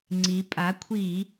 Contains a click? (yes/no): yes